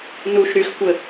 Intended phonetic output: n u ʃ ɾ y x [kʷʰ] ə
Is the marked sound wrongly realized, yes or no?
yes